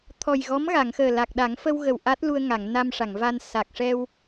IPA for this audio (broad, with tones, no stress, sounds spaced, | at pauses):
t̪ʰ ɔ˨˩ j ɣ ɔ˧˥ m ɣ a˨˩˨ ŋ x əː˨˩ l a˨˩ k̚ ɗ a˨˩˦ ŋ f ə˧ w ɣ ə˨˩ w ʔ a˦˥ t̚ l u˧ ə̯ ŋ a˨˩˨ ŋ n a˧ m ʂ a˨˩˨ ŋ v a˧ n s a˨˩ k̚ ʂ ɛ˧ w